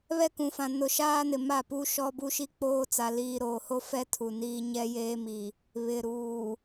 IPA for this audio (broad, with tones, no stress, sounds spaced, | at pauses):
β ɛ˦ k ũ˨ f ã˨ n ʊ˨ ʃ aː˦ n ɪ˨ m a˦˨ p u˦ ʃ ɔ˦ b u˦ ʃ i˦ k͡p oː˦ t͡s a˨ l iː˨ ɾ oː˨ h o˦ f ɛ˦ tʰ u˨ n iː˦ ɲ ɛ˦ j eː˦ m i˨ | β ɪ˨ ɾ uː˨